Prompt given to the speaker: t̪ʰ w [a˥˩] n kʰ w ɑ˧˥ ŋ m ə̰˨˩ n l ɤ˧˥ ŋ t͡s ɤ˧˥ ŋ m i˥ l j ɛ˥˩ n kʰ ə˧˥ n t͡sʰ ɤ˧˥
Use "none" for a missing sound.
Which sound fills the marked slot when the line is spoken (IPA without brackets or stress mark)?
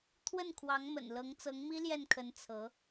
ə˥˩